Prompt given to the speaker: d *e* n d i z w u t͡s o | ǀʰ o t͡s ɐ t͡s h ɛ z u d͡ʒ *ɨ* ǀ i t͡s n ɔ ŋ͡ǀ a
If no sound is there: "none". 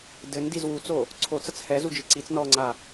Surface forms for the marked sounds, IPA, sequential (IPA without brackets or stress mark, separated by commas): ɘ, ɨ